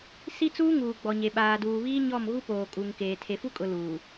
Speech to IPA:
si˦t͡suː˦ŋuː˨ ɡ͡bɔ˨ɲe˨ ɓaː˨duː˨βiː˦ ɲɔ˦˨mɣu˦ poː˨ kʼu˨ŋkeː˨ tʰe˨fu˦kʼʊ˨ luː˨

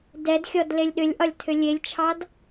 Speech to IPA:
dɛdxʲɔd lelʲɗʏlʲʔɒlʲtʰʏ lʲelʲt͡ʃʰɑd

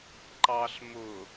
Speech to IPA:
ǃɑɬ mʊ

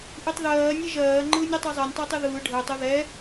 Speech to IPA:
ʔɯtˤðɜː nʲɛʒɜː ŋ͡ǃɯːnʲotˤɛzˤɜnʲ tˤəːtˤɯðɯː ɖʱəːtˤ oðɛ

